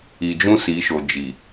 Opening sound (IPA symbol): i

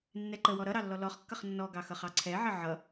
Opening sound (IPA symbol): nː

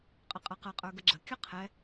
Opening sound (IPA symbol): qʼ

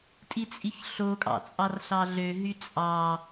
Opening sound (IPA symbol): tʼ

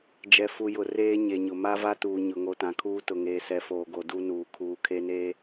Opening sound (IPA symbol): d͡ʒ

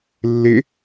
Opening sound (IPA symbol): lː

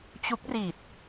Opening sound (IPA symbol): t͡ɕ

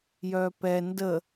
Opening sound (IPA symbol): j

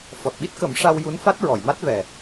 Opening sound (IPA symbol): f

